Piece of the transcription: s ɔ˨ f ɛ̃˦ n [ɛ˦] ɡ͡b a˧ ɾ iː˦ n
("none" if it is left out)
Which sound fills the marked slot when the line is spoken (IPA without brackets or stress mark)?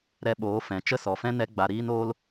ɛ˦